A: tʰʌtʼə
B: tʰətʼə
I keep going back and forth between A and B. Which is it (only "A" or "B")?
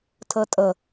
B